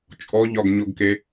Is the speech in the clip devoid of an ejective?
no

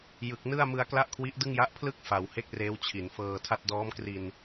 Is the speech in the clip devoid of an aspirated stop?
no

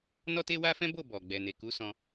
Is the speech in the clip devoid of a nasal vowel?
no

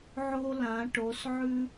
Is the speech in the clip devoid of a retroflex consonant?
no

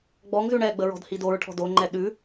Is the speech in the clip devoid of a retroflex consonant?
no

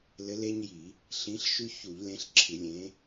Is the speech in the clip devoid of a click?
no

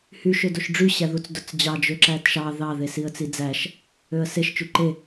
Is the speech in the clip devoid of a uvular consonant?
yes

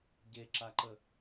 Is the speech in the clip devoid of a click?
no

